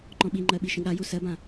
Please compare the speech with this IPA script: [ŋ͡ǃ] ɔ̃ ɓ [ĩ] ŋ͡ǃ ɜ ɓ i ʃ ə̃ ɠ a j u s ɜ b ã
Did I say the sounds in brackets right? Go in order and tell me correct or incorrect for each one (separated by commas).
correct, incorrect